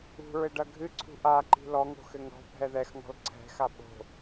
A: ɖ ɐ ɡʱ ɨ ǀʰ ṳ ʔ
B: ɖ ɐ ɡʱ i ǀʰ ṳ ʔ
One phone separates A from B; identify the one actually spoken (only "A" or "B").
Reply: A